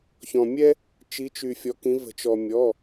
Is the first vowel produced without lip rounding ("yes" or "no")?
no